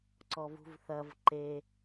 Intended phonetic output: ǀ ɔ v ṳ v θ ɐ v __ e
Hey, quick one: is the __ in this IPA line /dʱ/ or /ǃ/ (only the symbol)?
ǃ